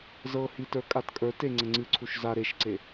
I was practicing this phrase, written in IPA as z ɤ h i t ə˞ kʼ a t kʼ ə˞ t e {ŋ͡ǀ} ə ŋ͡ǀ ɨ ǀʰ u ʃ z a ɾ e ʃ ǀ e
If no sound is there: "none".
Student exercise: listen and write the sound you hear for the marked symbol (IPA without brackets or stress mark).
ŋ͡ǀ